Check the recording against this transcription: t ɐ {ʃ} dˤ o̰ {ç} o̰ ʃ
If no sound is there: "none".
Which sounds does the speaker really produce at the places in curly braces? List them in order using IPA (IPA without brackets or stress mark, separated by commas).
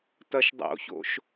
ʃ, ç